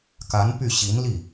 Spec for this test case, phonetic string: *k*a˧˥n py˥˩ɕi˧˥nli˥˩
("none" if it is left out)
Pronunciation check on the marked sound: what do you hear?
k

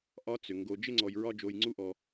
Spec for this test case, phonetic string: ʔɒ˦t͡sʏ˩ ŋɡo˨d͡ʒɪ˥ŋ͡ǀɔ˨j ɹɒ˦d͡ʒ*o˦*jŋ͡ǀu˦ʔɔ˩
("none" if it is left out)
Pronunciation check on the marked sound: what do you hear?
o˨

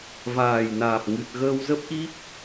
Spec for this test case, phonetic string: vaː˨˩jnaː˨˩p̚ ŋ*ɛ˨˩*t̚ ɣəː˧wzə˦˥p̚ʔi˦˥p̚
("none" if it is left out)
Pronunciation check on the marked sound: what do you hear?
ɨ˨˩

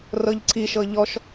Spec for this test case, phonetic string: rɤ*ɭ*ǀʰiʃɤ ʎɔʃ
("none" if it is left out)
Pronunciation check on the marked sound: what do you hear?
ʎ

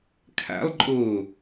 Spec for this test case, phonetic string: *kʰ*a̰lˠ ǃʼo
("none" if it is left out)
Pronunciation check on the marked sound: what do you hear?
kʰ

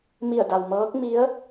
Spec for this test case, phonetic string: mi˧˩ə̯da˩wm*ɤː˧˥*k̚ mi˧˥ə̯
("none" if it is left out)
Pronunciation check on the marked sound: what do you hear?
ɤː˧˥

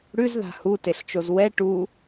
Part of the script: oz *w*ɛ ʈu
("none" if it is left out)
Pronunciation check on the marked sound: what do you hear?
w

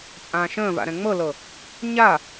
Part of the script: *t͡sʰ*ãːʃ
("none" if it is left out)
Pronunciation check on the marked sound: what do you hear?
t͡sʼ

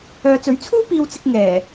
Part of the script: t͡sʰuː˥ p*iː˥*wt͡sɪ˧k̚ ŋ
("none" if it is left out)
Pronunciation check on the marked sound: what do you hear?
iː˧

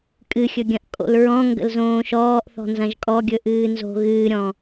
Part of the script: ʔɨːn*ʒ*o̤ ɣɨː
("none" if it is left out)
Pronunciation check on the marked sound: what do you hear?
z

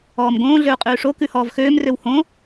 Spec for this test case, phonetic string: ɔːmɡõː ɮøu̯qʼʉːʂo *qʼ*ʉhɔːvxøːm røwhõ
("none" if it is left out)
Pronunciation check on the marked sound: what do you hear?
k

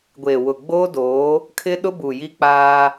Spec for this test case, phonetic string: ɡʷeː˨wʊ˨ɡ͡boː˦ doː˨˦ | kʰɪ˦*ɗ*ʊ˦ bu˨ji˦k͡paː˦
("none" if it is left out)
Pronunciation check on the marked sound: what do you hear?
ɗ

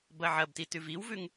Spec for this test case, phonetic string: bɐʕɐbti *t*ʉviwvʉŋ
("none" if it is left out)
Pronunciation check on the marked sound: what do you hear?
t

